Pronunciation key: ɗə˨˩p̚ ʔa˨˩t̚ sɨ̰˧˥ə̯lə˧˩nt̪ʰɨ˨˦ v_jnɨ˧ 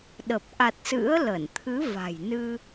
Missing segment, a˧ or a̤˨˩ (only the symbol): a̤˨˩